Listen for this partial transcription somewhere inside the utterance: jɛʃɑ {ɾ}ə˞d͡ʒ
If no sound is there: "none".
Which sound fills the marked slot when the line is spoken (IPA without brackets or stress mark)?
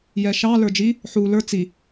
l